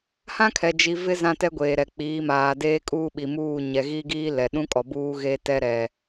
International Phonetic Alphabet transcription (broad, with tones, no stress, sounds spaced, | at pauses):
h ã˦ kʰ ɛ˨ d͡ʒ i˨ v ɪ˦ z ã˦ t ɛ˦ ɡʷ eː˨ ɾ ɛ˨ k͡p iː˨˦ m aː˨ d eː˦ kʼ uː˦ ɓ i˨ m uː˦˨ ɲ ɛ˨ ɣ i˦ ɡ iː˦ l ɛ˨ ɗ ũ˦ kʼ ɔ˨ b uː˦ ɣ e˦ t ɛ˦ ɾ ɛ˨